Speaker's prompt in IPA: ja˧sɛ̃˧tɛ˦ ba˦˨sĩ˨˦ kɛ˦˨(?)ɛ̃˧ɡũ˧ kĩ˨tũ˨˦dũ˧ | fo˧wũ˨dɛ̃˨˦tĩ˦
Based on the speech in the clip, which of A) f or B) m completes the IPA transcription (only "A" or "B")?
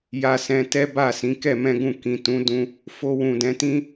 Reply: B